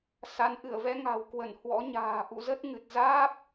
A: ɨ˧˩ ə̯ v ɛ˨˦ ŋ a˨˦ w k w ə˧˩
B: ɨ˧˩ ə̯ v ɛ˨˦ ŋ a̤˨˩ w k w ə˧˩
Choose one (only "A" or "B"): B